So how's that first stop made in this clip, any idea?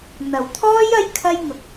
aspirated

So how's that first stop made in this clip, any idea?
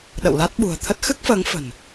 implosive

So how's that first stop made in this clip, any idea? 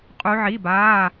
ejective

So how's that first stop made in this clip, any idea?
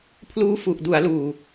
aspirated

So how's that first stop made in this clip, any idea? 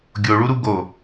plain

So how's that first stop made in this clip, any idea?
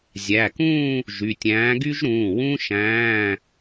plain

